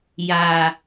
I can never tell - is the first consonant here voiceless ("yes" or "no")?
no